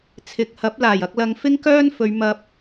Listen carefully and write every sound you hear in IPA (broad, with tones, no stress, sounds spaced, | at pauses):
t͡sʰ ɪ˨ k̚ h ɐ˨˥ p̚ l aː˨˩ j ɐ˧ k̚ l ɐ˨˧ ŋ f ɪ˥ ŋ k œː˥ n f ɵ˨˧ ɥ m ɐ˧ p̚